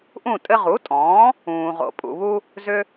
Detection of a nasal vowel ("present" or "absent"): present